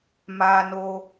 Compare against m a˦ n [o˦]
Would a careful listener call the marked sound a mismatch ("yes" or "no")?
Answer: no